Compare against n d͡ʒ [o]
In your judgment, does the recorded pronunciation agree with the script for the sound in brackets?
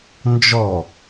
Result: no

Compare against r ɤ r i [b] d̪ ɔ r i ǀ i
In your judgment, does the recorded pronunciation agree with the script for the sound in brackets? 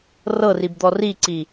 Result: yes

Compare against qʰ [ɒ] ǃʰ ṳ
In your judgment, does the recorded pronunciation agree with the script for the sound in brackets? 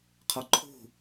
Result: yes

